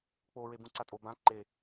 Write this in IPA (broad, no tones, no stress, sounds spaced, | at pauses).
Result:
k͡p o ɹ e b ũ ǀ a tʼ o b ã ǃ e